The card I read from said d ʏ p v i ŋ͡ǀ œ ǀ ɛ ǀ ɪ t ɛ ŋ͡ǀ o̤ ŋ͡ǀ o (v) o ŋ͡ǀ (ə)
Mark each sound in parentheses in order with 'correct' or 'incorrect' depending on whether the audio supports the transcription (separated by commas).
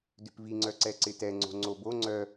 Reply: incorrect, incorrect